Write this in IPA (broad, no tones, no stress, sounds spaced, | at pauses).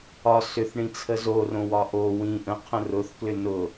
ɒ s ʏ θ ɳ ĩ t͡sʰ ə z o r õ w ɒ ʔ o w ĩ ʔ ə̃ qʰ ə̃ r ʊ θ k l ʏ n ʊ